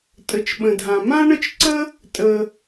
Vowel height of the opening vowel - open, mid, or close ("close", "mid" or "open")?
mid